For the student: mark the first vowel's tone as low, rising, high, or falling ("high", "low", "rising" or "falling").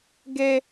high